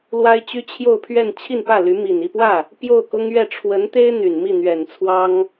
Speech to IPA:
l w a˥ ɪ̯ t͡ɕ y˥ t͡ɕʰ j o˥˧ ʊ̯ pʰ ɥ ɛ˥˧ n t͡ɕʰ i˥˧ n p ä˥˩ l y˧˥ m i˨˩ n i˥˧ p w ä˥˩ | p j o˥˩ ʊ̯ k ʊ˥ ŋ ɥ ɛ˥˩ ʈ͡ʂʰ w ə˧˥ n t̪ e˥ ɪ̯ n̪ y˨˩ n m i˥˩ n̪ ɥ ɛ˨˩ n t͡sʰ w ɑ˥ ŋ

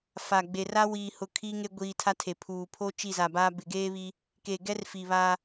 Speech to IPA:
f a˨ ɡ͡b e˨ r a˦ w iː˨ h ʊ˨ kʰ iː˦ ŋ e˦ ɡʷ iː˨ tʰ a˦ tʰ e˨ pʰ uː˨ pʰ o˦ t͡ʃ i˦˨ z a˨ b aː˦ b ɪ˨ ɡ eː˦ β i˦ | k e˨ ɡ ɛ˦ r f i˨ β aː˦

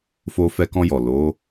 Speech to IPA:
f o˧ f ɛ˧ k ɔ̃˧ j ɔ˨ l o˨˦

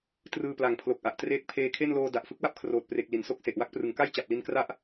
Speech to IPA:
t r ɯː˧ p l a˨˩ ŋ pʰ l o˨˩ k̚ ʔ a˨˩ ʔ t r eː˦˥ k̚ pʰ eː˧ kʰ e˥˩ n l oː˧ d a˨˩ ʔ f ɯ˦˥ k̚ w a˥˩ p̚ kʰ r oː˨˩ t̚ p r e˨˩ k̚ l i˨˩ n s o˥˩ k̚ s e˨˩ ʔ w a˦˥ k̚ p r ɯ˩˦ ŋ k a˥˩ j t͡ɕ a˨˩ p̚ l i˧ n k r a˥˩ ʔ

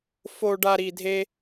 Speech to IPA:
f o˧ ɖ a˧ ɾ i˧ dʱ e˦

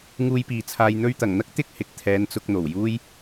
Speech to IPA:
ŋ uː˧ j p iː˨ t͡sʰ aː˧ j n̪ ɵ˧ ɥ t̪ ɐ˨˩ ŋ n̪ ɐ˥ k̚ t̪ ɪ˥ k̚ h ɪ˨ k̚ t̪ʰ ɛː˨˧ n t͡s ʊ˧ k̚ n̪ o˨˩ w j uː˥ j

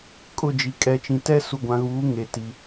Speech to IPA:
kʼ ʊ˦˨ d͡ʒ i˨ kʼ ɛ˨ t͡ʃ ĩ˨ t ɛ˦ s u˨ ɡʷ ã˨ ɣ uː˨˦ ŋ e˨ t i˨

